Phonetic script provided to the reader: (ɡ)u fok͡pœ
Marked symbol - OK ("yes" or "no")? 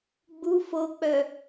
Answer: no